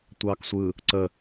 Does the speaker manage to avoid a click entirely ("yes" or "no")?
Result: no